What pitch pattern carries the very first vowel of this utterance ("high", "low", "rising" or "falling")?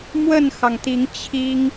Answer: falling